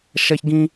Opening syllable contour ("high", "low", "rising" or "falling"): high